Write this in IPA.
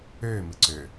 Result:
øːmɨ ǀø

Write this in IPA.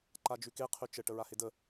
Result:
ǃad͡ʒʉke qʰʉt͡ʃə ʈəɹahedə

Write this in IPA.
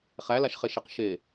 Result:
χælaʃχeʃeq ʃe

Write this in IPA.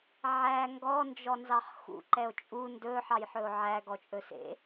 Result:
ʕæ ŋɡɔ nd͡ʒɔnzɑχxṵ ǃɛo̯t͡ʃʼu ndɵ ħɑjħɵo̯ʕæ ɡɔt͡ʃʼɵsḛ

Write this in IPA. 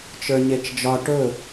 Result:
t͡ʃə˞ɲet͡ʃd͡ʒɒ ʈɵ

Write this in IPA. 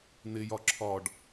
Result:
n̪ɪjɒ ǁʰɒɖ

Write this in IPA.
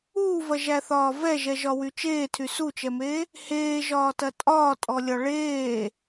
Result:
uːvɐʒæθɒː vɛʒɛʒɒwy t͡ʃeːtʰy sut͡ʃɛmeː | heːʒɒːtɐ tʼɒːtʼɔlʲɒ ɭeː

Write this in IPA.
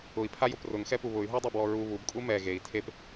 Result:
ʊi̯pʰajʊp rʊŋxɛpu βʊy̯ɦodˤubwɔ ɹu βubkʼu mɛ ɣei̯ tʰep

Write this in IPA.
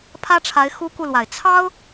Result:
pʰä˥ʈ͡ʂʰa˧˥ɪ̯ xu˥ku˥˩lwa˨˩ɪ̯ t͡sʰɑ˥ʊ̯

